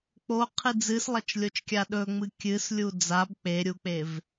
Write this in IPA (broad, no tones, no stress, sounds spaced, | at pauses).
k͡p o qʰ ɨ d͡z ɨ s lˠ ɐ t͡ʃ lʲ o t͡ʃ kʲ a ɗ ɵ ŋ͡m ɨ kʲ ɨ s lʲ u d͡z a b k͡p e ɾʲ u k͡p e v